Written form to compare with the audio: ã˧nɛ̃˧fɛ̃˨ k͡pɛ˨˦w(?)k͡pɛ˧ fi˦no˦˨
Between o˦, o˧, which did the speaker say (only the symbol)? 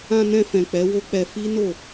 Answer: o˦